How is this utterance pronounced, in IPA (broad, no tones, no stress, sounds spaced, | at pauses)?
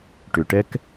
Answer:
ʈ ʏ ʈ ɛ k